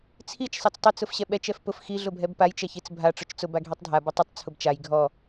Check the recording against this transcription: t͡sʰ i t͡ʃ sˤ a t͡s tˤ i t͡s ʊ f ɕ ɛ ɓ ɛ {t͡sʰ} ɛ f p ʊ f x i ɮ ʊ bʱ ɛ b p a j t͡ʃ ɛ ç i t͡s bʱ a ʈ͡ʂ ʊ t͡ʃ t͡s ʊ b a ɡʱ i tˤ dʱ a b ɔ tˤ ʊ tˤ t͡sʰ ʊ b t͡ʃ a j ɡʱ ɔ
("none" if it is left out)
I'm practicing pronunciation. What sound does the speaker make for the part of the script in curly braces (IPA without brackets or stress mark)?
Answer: t͡ʃ